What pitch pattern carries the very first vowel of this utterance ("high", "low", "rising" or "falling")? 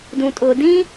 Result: low